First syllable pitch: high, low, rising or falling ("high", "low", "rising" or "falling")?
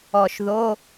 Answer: low